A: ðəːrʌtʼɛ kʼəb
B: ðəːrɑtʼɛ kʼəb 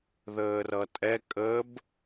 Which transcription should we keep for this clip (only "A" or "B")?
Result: A